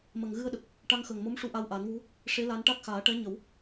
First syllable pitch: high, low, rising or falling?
low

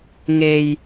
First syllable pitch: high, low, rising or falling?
low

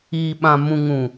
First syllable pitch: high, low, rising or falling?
low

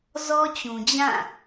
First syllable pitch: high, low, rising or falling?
high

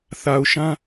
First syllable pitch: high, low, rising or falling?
low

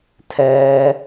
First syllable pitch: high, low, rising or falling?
low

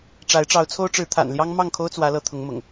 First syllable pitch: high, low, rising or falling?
rising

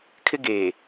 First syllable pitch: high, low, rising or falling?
high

